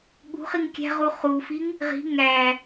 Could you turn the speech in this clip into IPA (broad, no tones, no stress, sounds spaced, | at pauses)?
ɠ ṳ χ i ŋ kʲ æ̤ ʁ u χ u f i ŋ | ʁ i̤ ŋ æ